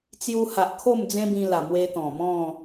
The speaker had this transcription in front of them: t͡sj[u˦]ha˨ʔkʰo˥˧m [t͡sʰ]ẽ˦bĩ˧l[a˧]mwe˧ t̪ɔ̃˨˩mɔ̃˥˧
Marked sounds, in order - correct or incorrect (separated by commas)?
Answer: incorrect, incorrect, incorrect